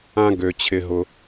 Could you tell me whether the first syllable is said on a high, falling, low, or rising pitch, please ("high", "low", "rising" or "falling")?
high